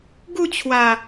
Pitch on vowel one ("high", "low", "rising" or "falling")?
falling